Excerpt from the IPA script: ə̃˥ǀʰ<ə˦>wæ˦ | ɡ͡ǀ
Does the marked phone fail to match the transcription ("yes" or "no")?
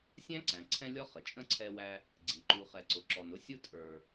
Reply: yes